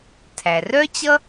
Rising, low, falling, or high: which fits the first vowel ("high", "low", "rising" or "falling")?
low